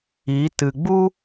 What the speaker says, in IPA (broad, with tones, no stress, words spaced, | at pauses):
i˨˦ tɨ˨ɡ͡bu˦